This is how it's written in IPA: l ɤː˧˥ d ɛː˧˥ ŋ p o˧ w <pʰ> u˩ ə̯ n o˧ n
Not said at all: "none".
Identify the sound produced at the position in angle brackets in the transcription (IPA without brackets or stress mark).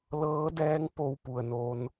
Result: p